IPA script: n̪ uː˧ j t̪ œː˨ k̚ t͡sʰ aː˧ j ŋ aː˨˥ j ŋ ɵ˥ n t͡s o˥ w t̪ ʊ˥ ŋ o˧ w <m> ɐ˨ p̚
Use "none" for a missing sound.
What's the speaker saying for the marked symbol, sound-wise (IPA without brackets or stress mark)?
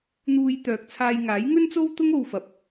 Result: f